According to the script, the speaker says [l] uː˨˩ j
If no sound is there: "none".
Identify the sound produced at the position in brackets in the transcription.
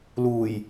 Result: l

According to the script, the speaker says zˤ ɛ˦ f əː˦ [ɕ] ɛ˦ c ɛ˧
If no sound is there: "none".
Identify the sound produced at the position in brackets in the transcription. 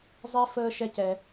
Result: ʃ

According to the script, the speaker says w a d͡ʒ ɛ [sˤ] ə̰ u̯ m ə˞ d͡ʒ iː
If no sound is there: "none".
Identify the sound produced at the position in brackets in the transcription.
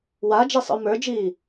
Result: sˤ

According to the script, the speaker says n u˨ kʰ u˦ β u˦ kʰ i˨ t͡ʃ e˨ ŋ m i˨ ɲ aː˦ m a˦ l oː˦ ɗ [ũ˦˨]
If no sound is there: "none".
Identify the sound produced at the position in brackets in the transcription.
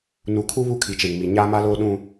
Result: ũ˦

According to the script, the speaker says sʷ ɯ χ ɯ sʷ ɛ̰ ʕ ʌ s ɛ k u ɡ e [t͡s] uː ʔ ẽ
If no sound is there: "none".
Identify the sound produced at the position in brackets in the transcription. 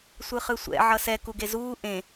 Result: z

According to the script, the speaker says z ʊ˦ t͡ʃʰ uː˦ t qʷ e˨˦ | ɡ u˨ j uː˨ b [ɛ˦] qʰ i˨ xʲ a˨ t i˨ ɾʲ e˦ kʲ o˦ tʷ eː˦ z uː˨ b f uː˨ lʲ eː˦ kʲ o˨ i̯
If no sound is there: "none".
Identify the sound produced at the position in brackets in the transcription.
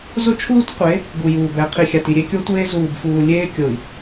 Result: ɛ˨˦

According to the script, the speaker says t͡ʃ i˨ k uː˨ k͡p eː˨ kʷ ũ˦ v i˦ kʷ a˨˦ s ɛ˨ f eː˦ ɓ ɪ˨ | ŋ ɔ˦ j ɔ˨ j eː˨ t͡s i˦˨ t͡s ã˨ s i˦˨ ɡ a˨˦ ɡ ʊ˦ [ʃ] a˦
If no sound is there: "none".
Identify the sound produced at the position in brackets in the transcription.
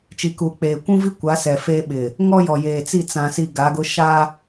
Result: ʃ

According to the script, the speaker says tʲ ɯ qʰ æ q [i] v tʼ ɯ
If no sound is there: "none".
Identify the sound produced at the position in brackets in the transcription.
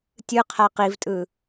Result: i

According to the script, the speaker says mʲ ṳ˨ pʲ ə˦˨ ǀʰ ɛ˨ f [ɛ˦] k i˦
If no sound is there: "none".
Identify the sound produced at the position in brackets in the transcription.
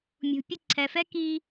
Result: ɛ˦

